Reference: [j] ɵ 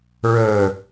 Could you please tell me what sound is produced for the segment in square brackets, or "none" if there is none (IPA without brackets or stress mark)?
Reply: ɹ